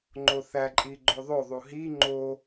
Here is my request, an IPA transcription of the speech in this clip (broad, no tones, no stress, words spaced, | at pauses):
ŋ͡ǃoθæ ǃʼiɡ͡ǃoðˤoðˤu ɦi ŋ͡ǃo